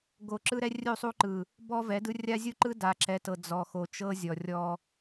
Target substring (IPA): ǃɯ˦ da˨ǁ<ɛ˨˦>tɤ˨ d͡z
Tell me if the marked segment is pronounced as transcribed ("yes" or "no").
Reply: yes